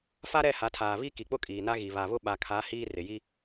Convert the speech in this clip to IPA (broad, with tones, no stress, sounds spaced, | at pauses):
f a˦ ɾ ɛ˦˨ h a˨˦ tʰ aː˨ β i˦ k i˨ k͡p ʊ˦ kʼ iː˨ n a˦ ɣ i˨ β a˨ β ʊ˦ ɓ a˨ kʰ a˨˦ h iː˦ r ɪ˨ j i˦